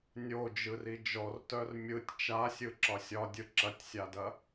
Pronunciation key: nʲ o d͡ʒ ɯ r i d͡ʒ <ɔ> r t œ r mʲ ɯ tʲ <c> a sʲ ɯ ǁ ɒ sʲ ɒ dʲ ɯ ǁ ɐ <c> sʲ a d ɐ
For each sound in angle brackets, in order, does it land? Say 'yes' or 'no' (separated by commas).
yes, no, no